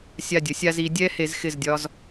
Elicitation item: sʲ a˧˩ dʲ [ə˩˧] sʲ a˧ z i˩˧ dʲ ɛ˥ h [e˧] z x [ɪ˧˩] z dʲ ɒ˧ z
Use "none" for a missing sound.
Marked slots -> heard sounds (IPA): ə˩˧, e˩˧, ɪ˧˩

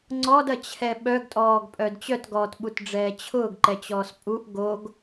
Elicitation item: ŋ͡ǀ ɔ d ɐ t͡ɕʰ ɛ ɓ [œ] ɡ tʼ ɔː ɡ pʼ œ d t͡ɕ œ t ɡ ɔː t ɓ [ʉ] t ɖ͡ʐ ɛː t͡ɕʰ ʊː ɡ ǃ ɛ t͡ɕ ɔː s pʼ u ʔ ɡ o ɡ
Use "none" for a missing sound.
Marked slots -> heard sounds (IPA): œ, u

